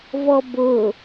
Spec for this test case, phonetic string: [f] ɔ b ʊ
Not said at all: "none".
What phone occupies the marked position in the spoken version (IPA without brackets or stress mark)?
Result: v